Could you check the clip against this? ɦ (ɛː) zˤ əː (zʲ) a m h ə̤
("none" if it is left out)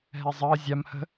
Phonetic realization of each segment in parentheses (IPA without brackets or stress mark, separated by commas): ɛ, zʲ